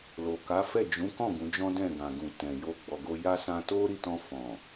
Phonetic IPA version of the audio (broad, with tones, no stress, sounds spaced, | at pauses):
l o˨ k a˨˦ f ɛ˦˨ d͡ʒ ũ˨˦ k ɔ̃˦˨ ɡ ũ˨˦ d͡ʒ ɔ̃˦ d ɛ̃˦˨ ɡ ã˨ ɡ ũ˨ t ɛ̃˨ j o˧ ɡ͡b ɔ˨ ɡ o˧ j a˦ s ã˧ t o˦ ɾ i˦˨ t ɔ̃˧ f ɔ̃˨